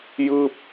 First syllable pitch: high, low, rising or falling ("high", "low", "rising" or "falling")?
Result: falling